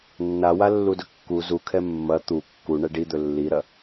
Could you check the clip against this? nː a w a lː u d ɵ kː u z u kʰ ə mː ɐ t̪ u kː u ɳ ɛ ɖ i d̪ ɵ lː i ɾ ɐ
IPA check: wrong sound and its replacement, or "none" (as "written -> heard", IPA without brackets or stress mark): ə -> ɛ